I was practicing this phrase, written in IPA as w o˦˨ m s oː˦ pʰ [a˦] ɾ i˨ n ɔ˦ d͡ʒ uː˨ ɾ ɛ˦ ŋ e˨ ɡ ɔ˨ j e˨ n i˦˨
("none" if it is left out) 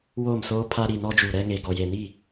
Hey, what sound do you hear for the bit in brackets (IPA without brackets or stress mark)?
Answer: a˦